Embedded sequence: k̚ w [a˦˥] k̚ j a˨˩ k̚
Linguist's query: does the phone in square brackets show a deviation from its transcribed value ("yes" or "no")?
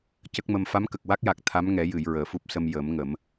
no